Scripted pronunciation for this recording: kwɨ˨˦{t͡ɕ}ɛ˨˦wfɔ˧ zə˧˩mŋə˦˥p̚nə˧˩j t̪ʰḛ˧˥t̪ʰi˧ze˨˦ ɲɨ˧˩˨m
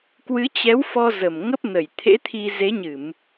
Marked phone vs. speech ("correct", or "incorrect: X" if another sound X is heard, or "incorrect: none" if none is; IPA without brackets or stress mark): correct